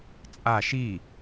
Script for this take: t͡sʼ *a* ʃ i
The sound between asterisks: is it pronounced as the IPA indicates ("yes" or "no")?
yes